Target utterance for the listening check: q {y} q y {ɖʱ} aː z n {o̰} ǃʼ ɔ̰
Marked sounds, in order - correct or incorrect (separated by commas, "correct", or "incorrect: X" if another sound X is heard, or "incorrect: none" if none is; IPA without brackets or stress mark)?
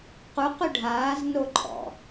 incorrect: u, correct, incorrect: o